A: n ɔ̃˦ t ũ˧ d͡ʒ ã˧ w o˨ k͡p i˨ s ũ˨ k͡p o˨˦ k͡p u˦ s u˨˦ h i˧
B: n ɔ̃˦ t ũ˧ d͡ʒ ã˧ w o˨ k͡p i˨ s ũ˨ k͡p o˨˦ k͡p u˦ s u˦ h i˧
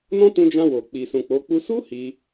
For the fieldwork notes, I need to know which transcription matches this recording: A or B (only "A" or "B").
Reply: B